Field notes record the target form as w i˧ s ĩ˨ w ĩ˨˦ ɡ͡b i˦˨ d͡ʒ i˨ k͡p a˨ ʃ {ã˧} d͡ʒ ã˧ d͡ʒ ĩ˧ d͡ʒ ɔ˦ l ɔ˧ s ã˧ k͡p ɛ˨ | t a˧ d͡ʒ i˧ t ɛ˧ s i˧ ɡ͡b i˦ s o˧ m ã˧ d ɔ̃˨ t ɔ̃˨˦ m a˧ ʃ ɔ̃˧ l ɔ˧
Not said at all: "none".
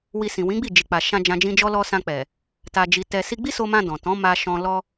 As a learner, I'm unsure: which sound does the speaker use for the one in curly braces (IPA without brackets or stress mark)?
ã˧